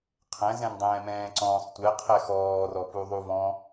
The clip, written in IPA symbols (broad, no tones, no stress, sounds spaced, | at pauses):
qʰ ɛ̃ z ɛ̃ n dˤ ɛ̃ː m ɛ̃ː ǀ ɔ̃ː sˤ tʷ ɛ qʰ ɛ x ɔː r ɔ p u ðˤ u v ɔ̃